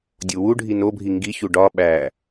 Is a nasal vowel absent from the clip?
yes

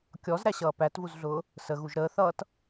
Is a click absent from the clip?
yes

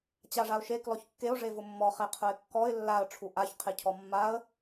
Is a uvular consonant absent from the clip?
no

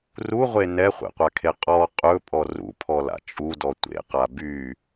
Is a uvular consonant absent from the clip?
no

